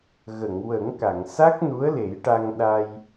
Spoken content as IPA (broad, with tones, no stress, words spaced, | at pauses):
ɣə˨˩˨ŋwə˨˩˦ŋka˨˩˨ŋ sa˦˥k̚nu˧˥ə̯ le˨˩˦jʈa˧ŋ ɗa˧j